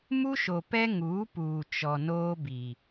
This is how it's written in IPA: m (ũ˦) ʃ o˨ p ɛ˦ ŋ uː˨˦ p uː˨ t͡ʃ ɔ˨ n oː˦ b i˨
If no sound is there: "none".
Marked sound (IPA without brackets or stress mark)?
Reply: u˦